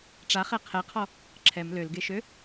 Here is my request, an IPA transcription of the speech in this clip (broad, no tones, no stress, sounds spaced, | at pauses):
ʈ͡ʂ a χ ɛ qʰ ɛ qʰ ɔ | ǁʰ ɛ m l ø l ɡ e ʃ ø